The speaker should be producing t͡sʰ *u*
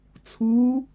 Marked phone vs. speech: correct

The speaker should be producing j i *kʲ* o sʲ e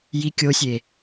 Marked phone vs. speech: correct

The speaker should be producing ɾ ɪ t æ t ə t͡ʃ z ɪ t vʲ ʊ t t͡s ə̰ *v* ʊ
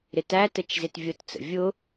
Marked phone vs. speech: incorrect: vʲ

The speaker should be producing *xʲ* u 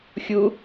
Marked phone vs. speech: correct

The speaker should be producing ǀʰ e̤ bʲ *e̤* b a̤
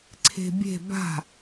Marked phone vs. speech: correct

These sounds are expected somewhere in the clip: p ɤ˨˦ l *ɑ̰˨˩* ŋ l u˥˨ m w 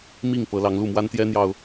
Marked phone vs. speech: incorrect: ɑ˨˦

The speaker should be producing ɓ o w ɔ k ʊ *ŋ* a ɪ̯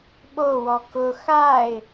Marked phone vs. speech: incorrect: x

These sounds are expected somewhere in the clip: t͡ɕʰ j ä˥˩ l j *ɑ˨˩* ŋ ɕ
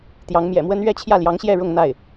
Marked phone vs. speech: incorrect: ɑ˧˥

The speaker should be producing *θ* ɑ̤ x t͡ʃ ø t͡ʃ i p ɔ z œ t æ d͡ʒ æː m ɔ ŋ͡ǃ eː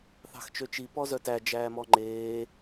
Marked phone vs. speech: correct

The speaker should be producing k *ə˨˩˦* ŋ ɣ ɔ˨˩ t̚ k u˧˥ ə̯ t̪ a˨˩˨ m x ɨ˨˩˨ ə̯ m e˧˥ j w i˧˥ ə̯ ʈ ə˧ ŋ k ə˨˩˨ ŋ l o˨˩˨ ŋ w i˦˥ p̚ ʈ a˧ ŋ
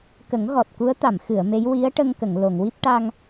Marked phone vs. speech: correct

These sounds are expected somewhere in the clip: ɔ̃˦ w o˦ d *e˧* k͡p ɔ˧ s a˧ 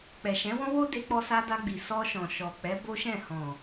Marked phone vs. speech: correct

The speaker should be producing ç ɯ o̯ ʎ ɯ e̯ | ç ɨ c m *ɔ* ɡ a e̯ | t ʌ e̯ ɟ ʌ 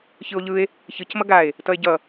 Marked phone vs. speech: incorrect: ʌ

